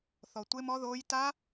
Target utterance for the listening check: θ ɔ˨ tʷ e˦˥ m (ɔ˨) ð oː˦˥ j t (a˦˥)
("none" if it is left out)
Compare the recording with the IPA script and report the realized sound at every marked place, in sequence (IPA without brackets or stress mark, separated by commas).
ɔ˦˥, a˦˥